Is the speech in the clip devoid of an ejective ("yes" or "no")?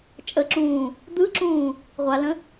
no